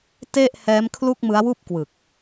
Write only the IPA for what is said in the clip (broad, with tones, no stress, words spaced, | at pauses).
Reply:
te˥˩ʔhɛː˦˥m kʰlu˥˩k̚mɯ˦˥a̯wuː˥˩p̚ kwɯ˨˩k̚